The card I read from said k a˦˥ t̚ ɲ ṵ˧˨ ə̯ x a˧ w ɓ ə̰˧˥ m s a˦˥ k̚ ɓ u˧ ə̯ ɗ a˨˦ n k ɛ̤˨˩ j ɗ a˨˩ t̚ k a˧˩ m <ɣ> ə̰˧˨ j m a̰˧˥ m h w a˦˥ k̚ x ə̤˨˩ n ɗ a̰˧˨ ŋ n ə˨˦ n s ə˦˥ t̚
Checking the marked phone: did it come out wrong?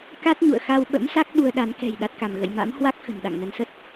no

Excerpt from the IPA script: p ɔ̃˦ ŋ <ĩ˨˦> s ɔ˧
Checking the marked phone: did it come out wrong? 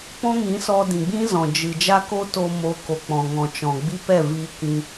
no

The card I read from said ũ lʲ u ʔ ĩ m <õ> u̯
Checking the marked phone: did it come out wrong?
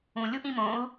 no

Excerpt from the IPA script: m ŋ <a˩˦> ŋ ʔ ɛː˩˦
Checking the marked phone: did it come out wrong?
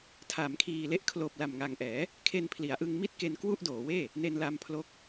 yes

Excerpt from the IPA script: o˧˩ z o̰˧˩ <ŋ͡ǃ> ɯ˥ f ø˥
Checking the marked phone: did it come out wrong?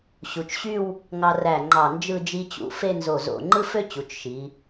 no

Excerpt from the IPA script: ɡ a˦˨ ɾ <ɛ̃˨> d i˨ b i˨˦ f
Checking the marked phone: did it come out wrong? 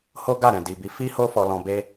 no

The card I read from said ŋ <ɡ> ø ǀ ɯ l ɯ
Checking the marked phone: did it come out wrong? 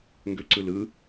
no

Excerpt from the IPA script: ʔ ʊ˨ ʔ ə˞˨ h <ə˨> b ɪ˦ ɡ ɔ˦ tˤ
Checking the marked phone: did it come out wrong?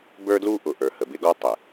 no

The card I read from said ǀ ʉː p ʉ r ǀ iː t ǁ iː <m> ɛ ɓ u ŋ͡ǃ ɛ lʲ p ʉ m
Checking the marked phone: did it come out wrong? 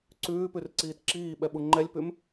yes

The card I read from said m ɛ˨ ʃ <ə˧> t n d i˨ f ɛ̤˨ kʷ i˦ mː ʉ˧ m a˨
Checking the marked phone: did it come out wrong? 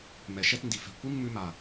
yes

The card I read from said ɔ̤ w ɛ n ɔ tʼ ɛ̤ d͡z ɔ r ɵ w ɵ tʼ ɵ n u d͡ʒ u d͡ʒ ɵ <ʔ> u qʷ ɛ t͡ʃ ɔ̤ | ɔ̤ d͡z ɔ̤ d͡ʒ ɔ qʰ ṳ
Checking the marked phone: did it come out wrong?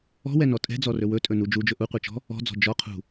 no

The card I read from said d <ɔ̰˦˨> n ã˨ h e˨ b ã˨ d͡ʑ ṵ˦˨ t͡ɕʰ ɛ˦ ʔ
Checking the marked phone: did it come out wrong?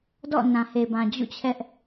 no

